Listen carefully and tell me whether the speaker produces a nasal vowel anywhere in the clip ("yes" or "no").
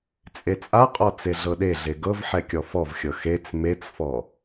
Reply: no